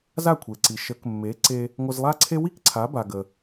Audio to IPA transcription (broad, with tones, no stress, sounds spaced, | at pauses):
z a˥˩ kʷʰ e˩ ǀ i˩ ʃ ə˩˥ k mː e˩˥ ǀ e˧ | ŋʷ ə˧ z lˠ a˥ ǀʰ e˥ w i˥ k ǀʰ a˩˥ b a˩ ɡ ə˩